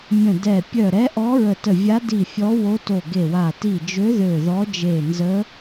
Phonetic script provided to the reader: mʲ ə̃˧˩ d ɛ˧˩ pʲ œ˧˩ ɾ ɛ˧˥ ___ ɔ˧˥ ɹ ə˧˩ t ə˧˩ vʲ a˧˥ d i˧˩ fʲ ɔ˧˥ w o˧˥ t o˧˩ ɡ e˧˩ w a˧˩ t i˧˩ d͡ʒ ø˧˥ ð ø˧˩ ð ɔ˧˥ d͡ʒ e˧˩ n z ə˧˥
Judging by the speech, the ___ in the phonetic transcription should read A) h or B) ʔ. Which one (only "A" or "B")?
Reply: B